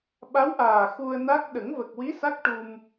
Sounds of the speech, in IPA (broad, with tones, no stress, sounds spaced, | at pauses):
ɓ a˧˥ w ʔ aː˨˩ x u˧ ə̯ n a˦˥ k̚ ɗ ə˨˩˦ ŋ v ə˨˩ k̚ w i˧˥ s a˦˥ k̚ ʈ u˧ m